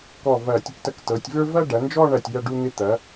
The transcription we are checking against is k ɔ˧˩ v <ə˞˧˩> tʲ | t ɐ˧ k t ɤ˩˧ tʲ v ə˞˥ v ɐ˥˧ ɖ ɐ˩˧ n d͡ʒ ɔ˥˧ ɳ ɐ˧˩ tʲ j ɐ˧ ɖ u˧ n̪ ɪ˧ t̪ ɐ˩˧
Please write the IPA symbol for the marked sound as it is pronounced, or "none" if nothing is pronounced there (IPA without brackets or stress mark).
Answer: ɐ˧˩